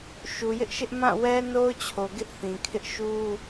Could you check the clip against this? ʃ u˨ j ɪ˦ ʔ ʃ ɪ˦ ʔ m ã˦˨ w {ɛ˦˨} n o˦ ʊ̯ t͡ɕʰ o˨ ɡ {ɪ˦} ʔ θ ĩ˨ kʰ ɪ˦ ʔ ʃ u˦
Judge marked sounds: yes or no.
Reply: no, yes

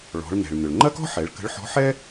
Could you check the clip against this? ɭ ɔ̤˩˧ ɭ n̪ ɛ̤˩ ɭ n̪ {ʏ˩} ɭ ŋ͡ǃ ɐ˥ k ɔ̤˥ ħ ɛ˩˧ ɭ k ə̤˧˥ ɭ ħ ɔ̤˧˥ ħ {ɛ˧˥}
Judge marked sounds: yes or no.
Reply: yes, no

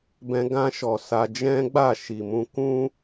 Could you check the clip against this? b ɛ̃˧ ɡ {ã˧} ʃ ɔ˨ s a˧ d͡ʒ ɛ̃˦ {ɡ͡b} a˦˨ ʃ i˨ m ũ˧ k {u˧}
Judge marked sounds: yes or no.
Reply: yes, yes, no

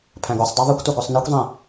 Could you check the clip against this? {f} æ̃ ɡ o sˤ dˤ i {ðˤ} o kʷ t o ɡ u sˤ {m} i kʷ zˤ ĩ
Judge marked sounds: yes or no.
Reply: no, yes, no

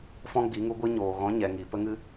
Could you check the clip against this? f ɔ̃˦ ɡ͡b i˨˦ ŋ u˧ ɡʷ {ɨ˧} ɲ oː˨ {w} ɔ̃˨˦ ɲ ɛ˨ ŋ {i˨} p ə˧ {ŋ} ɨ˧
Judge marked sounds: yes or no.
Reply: yes, no, yes, yes

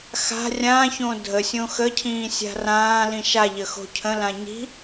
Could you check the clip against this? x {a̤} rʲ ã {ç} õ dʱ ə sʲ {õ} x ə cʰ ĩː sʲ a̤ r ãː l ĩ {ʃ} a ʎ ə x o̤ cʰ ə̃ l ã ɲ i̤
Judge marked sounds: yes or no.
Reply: yes, yes, yes, yes

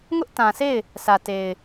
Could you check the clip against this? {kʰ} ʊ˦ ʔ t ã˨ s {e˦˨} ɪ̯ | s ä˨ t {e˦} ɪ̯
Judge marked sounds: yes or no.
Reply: no, yes, no

